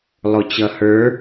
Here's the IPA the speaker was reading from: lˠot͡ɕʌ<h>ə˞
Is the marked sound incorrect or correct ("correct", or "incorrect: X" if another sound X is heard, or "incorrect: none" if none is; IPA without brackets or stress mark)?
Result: correct